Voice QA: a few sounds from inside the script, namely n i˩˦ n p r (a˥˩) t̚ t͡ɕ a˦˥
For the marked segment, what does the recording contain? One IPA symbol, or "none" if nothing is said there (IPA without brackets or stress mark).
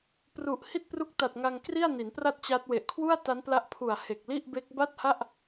a˥˩